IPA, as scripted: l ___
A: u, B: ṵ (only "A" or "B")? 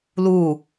A